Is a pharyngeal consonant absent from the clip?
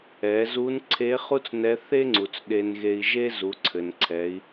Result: yes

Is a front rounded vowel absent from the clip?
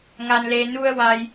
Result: yes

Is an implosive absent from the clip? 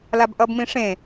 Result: yes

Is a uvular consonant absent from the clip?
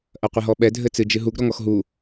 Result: no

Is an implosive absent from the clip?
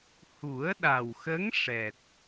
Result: no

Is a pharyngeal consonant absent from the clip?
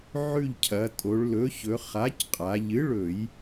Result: no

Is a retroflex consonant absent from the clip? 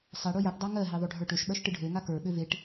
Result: no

